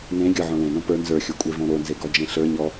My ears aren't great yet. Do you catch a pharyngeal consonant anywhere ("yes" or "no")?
yes